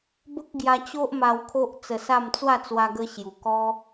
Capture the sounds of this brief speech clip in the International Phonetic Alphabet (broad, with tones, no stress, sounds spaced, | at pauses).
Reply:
b ə˦ k̚ ɡ j a˧ t͡ɕ o˦ ʔ m a˧ w kʰ o˦ ʔ t͡s ə˧ s a˥˧ m t͡s w a˥˧ t͡s w a˧ ɡ ə˧ ɕ j u˨˩ k ɔ˦